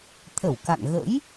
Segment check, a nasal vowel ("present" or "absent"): absent